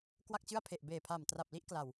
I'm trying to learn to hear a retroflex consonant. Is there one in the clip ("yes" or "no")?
no